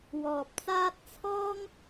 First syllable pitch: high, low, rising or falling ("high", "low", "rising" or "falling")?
low